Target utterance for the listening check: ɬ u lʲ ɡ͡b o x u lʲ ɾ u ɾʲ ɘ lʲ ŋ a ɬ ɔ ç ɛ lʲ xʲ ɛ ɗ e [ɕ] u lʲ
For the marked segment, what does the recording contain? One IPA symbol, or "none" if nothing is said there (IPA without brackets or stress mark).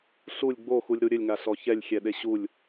ɕ